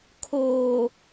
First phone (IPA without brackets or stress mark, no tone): kʰ